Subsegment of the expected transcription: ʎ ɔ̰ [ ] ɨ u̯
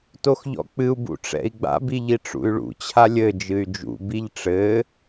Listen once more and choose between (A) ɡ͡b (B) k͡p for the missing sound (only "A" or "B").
B